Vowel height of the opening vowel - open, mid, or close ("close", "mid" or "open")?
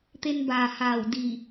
mid